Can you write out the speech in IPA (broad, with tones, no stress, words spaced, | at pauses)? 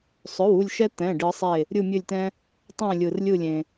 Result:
sˤɵ˩˧˩wu˧˩lʲʃɛ˧ t̪ɛ̃˩˧˩ɖɯ˨˩˦sˤe˧˩ | ɾʲɯ˧˩mʲɵ˧˩lʲtɛ̃˧ | tˤɛ̃˧˩lʲɯ˩r lʲɯ˧˩lʲẽ˩